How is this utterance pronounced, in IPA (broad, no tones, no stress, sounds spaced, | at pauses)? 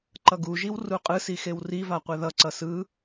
ǃ ʌ ɡ u ʒ i w r u qʼ ɯ s i x e w r i v a qʷ ɛ ð ʌ ǀ ʌ s ɯ